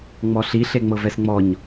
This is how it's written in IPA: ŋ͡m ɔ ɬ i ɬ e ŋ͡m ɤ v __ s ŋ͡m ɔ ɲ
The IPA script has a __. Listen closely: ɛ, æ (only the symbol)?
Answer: ɛ